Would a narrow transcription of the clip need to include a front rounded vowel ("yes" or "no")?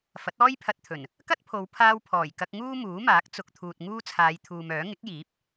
yes